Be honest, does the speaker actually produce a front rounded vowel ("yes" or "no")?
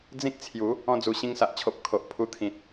no